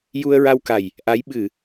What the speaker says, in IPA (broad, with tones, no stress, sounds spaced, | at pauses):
j u˧ ə̯ ɹ a˧ w k a˨˩ j | ʔ a˧˥ j ɓ ɨ˨˩˨